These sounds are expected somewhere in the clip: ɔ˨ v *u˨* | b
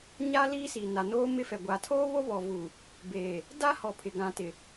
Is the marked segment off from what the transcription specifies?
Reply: no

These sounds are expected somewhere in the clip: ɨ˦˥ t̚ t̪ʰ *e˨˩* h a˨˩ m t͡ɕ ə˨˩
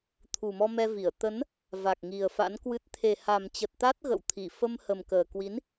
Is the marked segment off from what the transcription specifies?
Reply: no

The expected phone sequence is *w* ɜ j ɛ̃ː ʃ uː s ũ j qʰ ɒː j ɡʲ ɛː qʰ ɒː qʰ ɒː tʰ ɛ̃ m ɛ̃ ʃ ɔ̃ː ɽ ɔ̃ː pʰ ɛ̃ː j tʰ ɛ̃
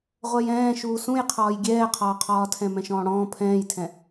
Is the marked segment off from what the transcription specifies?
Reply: yes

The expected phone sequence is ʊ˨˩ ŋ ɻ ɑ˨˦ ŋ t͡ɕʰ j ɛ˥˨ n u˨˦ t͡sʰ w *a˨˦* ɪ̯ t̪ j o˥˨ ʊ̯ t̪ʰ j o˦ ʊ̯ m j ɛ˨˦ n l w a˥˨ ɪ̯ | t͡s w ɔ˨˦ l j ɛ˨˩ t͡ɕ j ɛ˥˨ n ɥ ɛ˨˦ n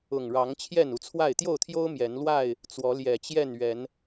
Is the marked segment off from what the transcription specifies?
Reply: yes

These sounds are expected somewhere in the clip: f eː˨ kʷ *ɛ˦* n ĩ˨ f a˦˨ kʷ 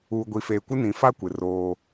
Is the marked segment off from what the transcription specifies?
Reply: yes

